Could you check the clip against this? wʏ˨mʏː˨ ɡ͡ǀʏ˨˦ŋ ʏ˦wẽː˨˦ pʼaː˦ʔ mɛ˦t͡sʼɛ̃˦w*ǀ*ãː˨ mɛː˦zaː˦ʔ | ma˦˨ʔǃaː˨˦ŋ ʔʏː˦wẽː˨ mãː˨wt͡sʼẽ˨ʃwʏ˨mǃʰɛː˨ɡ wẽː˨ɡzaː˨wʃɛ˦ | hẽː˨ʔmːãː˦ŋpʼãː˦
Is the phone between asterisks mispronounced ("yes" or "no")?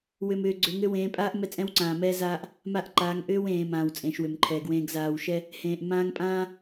no